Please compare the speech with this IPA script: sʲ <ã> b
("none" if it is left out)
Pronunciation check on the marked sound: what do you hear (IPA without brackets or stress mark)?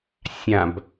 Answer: ã